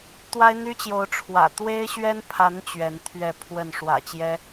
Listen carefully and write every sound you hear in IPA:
t̪wa˦ɪ̯n̪y˦t͡ɕjo˨˦ʊ̯ ʈ͡ʂʰwä̰˨˩ t̪we˦ɪ̯ɕɥɛ˦npʰa˨˦n t͡ɕɥɛ˨˦nt̪ʰɥɛ˥˨ pʰwə˥˨n ʂwä̰˨˩t͡ɕjɛ˦

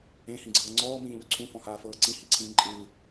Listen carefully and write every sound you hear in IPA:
ẽhĩɡ͡ǀɤː ŋ͡ǀɔːmĩː ʎoǀʰũ fɔ̃haːfɤːǀĩ hiǀʰĩːǃʼɯː

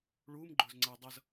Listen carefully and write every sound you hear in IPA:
ɭuːm ɡ͡ǃʊːzŋ͡ǀəː dˤʌz

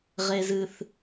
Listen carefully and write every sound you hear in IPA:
ʁe˦zɨ˦θ

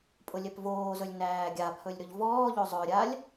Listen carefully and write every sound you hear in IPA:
pʼʊlʲɛpvoːzɵlʲ næːɡʲapʰɵlʲ ɾɵʎvɔːʎo zˤɵɾʲalʲ

